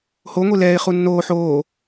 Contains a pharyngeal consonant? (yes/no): yes